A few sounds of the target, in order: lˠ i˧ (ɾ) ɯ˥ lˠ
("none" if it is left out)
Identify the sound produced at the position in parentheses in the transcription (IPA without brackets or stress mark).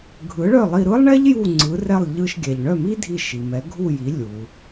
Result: ɾ